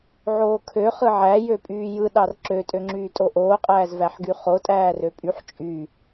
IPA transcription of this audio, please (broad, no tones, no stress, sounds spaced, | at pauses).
ʕ oː kʰ ø χ ɯ ʕ æ j ø pʼ yː j ɯ ɗ ɑ r ǁ ø tʼ ø ŋ͡ǁ yː tʼ o ʔ oː qʼ æː z v æ ħ ɡ y χ o tʼ æː r ø pʼ y ħ t͡ʃʼ y